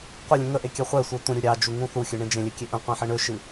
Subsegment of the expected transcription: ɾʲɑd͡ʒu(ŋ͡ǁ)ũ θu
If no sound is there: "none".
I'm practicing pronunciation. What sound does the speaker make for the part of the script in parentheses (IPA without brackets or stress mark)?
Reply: ŋ